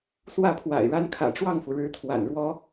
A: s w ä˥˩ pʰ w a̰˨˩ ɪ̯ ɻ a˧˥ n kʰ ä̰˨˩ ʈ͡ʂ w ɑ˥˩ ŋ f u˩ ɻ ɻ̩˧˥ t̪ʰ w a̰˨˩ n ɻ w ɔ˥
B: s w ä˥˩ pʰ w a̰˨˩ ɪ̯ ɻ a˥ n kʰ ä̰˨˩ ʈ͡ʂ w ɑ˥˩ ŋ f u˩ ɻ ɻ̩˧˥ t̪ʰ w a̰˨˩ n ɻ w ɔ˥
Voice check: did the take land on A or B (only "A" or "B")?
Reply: B